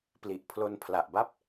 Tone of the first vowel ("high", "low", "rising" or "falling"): low